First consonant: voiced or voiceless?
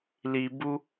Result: voiced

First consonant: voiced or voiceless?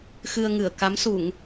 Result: voiceless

